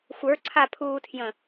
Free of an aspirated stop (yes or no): no